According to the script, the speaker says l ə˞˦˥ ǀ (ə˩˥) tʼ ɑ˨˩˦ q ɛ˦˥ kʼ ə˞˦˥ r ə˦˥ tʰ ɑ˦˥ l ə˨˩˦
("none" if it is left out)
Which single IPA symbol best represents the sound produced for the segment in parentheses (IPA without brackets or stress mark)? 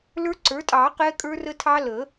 ə˞˩˥